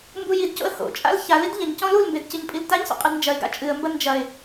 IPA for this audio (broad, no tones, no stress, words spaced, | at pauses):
mbujidco̰ə̯ ho̰t͡ʃʼa̰l çalid ʎɐɲcɔ̃ lulmbed cɨɲpʼiltaɲso̰ qʼɨdnd͡ʒɐɪ̯ɡa̰ t͡ʃʼɨə̯mbɐ nd͡ʒɐɪ̯